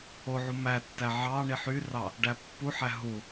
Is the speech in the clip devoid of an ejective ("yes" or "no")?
yes